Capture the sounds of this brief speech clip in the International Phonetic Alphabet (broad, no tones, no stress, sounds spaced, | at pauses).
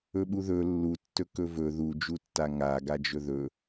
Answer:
ɵ ɓ u ð ɵ lː u tː ɵ k ɵ v ɵ ð u d͡ʒ u tː a ŋ a ɡ a d͡ʒ ɵ ð ɵ